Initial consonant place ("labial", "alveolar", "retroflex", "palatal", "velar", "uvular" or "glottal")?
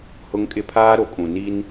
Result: glottal